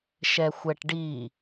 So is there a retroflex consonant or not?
yes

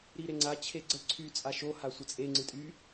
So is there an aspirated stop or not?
yes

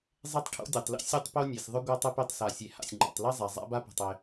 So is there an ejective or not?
no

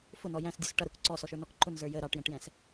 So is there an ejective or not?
no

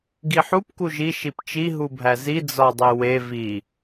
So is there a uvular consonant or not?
no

